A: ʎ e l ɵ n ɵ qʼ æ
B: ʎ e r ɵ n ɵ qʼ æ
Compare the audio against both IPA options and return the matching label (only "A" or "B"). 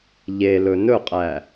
A